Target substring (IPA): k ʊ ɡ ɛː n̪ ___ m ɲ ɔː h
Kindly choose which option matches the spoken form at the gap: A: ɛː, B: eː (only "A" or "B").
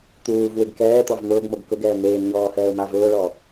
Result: B